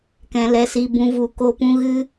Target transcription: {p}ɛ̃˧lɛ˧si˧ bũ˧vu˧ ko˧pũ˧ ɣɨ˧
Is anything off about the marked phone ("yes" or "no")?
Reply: yes